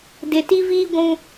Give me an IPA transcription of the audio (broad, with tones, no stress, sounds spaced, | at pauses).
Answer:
d ɪ˨ t i˦ v iː˦ ɡʷ ũ˦